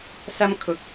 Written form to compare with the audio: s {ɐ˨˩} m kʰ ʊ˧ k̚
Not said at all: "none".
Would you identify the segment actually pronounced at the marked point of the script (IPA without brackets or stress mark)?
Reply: ɐ˥